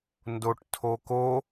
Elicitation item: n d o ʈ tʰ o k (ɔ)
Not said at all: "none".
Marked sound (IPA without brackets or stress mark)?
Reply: o